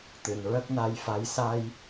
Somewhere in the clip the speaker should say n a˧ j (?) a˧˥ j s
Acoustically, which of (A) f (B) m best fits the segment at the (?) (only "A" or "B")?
A